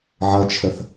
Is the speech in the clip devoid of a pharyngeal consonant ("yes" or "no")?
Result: no